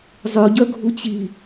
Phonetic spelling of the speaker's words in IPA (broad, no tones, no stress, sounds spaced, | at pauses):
zˤ ø ɟ œ ɡʱ u t͡ɕ i